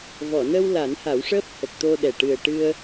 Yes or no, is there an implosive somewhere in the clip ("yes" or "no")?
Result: yes